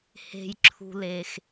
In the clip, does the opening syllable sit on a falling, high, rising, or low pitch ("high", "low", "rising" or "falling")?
low